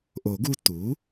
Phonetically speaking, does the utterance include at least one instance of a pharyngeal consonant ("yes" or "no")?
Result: no